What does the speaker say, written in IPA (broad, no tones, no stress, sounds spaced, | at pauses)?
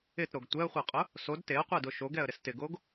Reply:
ɪ t ɾ o ɡ tʷ ɛ ə̯ χʷ ɜ qʼ ʊ | s o d t e ə̯ qʷ ɛ d ʊ ʃ o ɡ ɛ ə̯ ɾ ɪ s t ɪ ɡ o ɡ